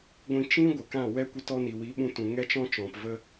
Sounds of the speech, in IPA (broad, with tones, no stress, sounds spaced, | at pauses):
ɡʷ ĩ˧ t͡ʃ ĩ˦ ɡʷ ə˨ k ã˦˨ w ɛ˦ kʷ ə˧ t ɔ˧ n i˨ w i˨˦ ɓ ũ˧ t ũ˨ ŋ ɛ˦ t͡ʃ ɔ̃˦ t͡ʃ ɔ̃˨ p v ə˧